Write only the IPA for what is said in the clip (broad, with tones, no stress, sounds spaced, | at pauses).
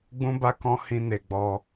ɡ͡b ũ˦ b a˦ k ɔ̃˦ h ĩ˧ n e˨ ɡ͡b ɔ˧